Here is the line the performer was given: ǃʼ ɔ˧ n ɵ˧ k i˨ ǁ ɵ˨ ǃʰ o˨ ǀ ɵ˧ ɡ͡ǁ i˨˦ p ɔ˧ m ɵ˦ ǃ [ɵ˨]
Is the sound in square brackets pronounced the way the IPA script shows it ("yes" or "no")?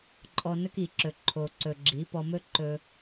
no